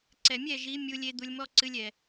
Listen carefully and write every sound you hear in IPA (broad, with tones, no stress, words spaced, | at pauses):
ǀɛ˨mʲɛ˦˨ʒi˨˦ mʲu˧lʲe˧ d̪u˧lʲmɔ˦ǀɨ˧lʲ ɛ˨